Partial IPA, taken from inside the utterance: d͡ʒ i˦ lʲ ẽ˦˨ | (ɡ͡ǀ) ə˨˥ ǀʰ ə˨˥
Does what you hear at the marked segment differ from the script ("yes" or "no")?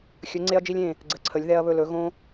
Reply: no